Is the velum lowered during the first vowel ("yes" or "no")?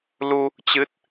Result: no